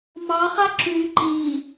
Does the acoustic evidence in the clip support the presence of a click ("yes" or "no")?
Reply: yes